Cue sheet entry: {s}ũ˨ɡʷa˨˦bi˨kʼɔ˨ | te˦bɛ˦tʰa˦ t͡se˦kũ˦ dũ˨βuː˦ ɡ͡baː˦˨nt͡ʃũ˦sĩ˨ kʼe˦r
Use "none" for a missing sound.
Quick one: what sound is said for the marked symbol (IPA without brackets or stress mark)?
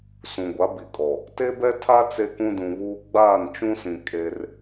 s